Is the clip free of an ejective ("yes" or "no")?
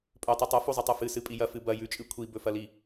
no